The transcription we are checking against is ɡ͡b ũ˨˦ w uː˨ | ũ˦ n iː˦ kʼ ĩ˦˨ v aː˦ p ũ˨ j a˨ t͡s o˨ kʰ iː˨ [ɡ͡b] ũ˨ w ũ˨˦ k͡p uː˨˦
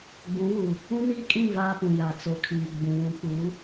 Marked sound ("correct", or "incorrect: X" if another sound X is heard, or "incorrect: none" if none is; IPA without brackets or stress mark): correct